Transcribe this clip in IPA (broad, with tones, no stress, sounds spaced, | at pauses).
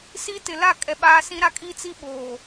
s i˦ t ɪ˨ l a˦˨ kʼ ɛ˨ ɓ aː˦ s ĩ˦ ɾ a˦ kʼ iː˦ t͡s i˦ ɓ oː˨